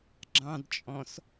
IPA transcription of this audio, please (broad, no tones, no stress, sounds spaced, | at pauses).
ɡ͡ǁ ɑ̃ d t͡ʃʼ ɔ̃ s